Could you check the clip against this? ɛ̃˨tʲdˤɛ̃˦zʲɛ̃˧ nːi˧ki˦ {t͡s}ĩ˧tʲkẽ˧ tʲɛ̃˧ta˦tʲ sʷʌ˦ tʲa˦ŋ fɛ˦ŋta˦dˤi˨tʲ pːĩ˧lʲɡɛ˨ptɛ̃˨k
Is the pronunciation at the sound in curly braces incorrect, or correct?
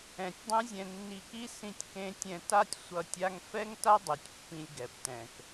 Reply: incorrect